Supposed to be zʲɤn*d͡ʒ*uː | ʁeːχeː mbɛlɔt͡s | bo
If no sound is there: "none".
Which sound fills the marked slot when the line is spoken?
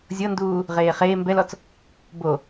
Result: d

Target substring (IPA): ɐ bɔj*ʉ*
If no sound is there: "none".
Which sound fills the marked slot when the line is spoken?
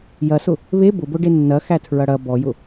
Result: ʊ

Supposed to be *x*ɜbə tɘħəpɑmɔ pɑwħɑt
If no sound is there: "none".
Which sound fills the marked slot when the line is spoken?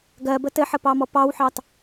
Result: ɡ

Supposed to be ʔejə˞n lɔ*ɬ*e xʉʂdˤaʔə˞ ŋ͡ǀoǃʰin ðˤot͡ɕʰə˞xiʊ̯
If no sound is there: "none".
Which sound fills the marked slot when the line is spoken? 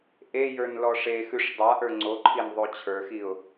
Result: ʂ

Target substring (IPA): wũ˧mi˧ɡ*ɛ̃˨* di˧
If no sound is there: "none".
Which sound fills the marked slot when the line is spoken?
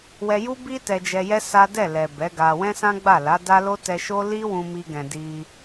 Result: ɛ̃˨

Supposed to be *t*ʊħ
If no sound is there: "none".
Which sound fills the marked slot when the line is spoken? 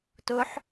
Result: t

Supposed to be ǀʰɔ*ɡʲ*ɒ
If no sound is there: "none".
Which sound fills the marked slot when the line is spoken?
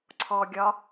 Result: ɡʲ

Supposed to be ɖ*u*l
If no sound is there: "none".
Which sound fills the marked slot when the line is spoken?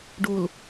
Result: u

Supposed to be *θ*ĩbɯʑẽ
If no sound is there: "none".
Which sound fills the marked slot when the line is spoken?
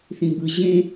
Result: θ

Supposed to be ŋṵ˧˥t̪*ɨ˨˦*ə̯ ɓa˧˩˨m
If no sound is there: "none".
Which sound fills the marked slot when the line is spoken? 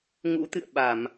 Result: ɨ̰˧˨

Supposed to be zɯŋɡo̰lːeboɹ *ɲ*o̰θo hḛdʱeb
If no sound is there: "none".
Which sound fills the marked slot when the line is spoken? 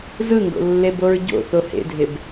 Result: ɟ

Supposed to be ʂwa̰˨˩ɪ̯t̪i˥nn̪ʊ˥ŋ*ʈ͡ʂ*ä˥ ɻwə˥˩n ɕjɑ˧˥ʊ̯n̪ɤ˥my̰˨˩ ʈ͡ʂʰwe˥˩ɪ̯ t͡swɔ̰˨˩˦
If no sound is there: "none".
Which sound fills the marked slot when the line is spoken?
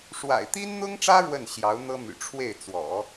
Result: ʈ͡ʂ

